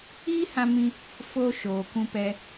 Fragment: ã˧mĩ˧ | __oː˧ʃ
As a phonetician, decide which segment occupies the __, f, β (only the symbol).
f